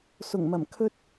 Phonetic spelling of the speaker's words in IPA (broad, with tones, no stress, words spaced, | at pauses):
sʊ˨˩ŋmɐ˨˩m kʰɵ˥t̚